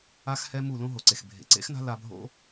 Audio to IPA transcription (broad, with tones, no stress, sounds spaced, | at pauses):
a˦ x h ɛ˦ m u˦˨ l õ˦ ɦ o˨ ǀ e˨ x bʱ ḛ˨ ǀ ḛ˦ x n a̤˦ l a˧ bʱ o̰˦